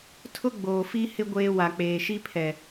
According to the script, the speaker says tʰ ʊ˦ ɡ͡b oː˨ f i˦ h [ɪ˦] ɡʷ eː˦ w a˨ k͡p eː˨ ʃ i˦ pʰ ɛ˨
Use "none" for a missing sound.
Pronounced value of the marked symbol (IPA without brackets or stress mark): ɪ˦